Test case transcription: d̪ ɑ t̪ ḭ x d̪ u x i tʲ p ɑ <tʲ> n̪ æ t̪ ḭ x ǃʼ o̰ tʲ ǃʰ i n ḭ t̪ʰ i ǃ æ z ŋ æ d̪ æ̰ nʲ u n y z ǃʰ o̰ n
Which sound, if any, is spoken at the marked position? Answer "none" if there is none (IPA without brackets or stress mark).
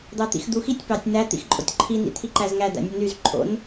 tʲ